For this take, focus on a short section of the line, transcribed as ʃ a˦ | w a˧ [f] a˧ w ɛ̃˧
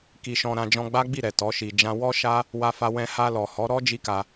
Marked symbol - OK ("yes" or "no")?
yes